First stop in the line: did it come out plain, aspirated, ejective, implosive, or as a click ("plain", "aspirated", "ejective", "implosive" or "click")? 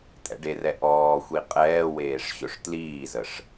ejective